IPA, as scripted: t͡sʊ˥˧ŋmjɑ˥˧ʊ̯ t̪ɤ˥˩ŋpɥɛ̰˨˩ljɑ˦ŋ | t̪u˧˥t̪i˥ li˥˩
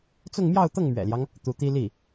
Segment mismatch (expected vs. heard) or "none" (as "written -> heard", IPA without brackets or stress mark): p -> m